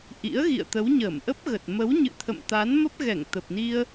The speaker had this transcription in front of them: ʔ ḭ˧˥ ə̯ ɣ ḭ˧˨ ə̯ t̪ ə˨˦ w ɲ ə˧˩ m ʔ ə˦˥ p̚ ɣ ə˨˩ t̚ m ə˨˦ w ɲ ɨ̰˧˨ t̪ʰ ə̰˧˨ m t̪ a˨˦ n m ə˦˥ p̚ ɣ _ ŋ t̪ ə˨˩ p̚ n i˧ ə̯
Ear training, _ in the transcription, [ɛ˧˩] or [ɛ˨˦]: ɛ˧˩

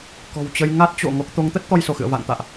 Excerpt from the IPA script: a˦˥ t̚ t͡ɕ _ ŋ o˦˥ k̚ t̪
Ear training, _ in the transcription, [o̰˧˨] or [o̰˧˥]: o̰˧˨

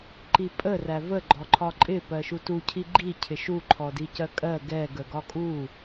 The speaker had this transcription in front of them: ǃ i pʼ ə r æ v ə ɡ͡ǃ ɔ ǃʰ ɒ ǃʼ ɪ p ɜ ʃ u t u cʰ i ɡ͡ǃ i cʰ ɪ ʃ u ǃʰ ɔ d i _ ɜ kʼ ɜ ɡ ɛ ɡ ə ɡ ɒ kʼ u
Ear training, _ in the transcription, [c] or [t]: c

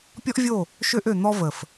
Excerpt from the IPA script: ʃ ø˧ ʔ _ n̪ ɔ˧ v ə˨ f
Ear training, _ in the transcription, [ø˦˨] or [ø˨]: ø˨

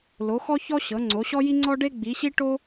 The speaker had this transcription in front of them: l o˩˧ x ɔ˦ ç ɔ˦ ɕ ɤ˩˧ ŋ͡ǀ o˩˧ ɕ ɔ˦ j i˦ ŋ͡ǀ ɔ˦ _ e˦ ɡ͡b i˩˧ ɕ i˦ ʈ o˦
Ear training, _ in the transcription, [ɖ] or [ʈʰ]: ɖ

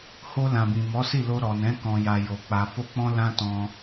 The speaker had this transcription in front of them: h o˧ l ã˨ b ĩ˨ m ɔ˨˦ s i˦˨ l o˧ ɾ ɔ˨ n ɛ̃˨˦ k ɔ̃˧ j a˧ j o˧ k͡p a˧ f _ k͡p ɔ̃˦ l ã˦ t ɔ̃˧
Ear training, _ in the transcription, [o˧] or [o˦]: o˦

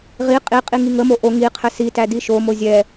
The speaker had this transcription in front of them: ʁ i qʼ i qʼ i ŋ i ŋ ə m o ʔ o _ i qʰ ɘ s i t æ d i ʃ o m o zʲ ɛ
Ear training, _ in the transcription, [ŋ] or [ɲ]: ŋ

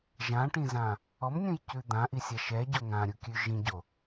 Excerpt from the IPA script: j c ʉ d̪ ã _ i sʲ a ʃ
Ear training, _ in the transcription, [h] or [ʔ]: ʔ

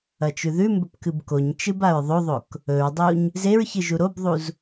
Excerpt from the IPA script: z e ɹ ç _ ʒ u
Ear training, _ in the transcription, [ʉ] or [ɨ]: ɨ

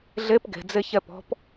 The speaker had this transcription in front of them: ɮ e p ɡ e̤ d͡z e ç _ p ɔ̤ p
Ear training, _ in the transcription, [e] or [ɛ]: ɛ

